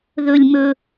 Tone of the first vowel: low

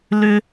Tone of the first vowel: high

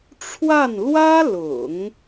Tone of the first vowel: falling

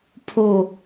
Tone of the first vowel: falling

